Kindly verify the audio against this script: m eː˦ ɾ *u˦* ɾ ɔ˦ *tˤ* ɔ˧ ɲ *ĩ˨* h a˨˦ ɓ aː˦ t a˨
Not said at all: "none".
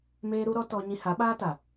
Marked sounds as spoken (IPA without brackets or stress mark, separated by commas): u˦, t, ĩ˧